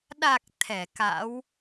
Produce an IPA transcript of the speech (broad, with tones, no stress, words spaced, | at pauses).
ɗa˨˩k̚ t̪ʰɛ˧˩ka̰˧˥w